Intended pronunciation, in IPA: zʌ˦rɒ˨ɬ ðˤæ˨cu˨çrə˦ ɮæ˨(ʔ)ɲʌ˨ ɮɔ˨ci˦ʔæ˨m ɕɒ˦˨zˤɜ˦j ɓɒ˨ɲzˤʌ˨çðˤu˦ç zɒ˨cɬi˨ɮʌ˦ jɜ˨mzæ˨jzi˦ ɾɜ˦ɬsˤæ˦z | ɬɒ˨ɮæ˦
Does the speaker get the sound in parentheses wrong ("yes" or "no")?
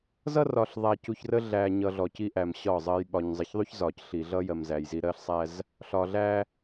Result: yes